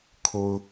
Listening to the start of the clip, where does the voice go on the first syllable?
high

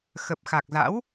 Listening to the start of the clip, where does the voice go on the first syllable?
low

